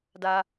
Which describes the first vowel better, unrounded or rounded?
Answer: unrounded